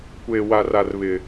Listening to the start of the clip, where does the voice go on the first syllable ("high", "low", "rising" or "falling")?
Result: low